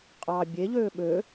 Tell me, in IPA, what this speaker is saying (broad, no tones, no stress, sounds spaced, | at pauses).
qʼ ɑ bʲ e ʎ øː ɓ ø